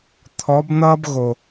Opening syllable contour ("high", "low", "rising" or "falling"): rising